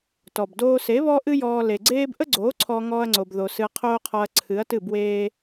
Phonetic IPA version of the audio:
t ɔ˨ b d oː˧ s e˨˦ β ɔ˦ ʔ ɨ˦ j ɔː˧ l e˨ ɡ͡ǀ eː˦ b ʔ ə˦ ɡ͡ǀ oː˨˦ ǀʰ ɔ˧ ŋ ɔː˦ ɐ̯ ŋ͡ǀ o˧ b ð o˧ s ɨ˧ ɐ̯ qʰ oː˦ qʰ ɔ˧ ɐ̯ ǀʰ ɨ˨˦ ɐ̯ t ɨ˦˨ b w eː˦

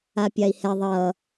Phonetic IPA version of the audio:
a pʲ a i̯ h ɛ ðˤ ʌ

